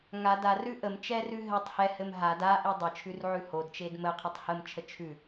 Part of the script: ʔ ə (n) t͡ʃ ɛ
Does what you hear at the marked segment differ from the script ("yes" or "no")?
yes